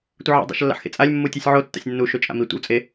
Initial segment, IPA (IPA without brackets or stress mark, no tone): tʷ